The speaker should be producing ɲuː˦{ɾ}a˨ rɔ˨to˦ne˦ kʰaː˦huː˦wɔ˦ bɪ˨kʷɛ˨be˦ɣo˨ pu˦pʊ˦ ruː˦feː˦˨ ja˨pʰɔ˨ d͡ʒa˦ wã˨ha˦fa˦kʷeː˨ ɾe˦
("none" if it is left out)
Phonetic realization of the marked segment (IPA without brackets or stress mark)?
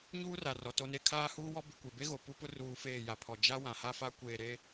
r